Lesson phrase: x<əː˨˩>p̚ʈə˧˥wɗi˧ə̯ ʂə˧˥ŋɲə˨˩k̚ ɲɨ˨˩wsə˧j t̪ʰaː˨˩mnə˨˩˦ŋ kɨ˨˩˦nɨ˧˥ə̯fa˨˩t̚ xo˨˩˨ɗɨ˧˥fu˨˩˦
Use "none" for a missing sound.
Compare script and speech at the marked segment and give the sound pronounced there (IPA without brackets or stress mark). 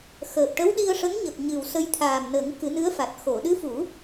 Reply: əː˨˩